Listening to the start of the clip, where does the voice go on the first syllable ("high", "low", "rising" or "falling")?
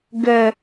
high